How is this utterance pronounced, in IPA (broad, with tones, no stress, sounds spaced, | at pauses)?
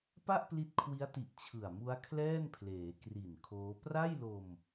p a˥˩ ʔ p l i˦˥ t̚ kʰ w i˦˥ a̯ t i˨˩ ʔ t͡ɕʰ ɯ˨˩ a̯ m u˦˥ a̯ kʰ l ɛː˥˩ n pʰ l eː˩˦ k r i˨˩ n kʰ oː˦˥ p r a˥˩ j l o˧ m